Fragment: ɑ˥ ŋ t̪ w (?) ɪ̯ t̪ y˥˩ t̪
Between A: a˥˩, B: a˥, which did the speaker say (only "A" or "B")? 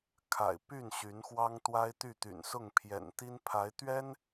B